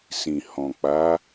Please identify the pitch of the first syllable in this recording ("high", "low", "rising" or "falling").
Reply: low